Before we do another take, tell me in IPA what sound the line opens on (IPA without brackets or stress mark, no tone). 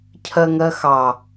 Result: cʰ